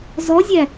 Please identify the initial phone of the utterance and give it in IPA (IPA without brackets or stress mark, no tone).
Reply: z